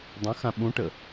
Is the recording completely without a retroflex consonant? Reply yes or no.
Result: no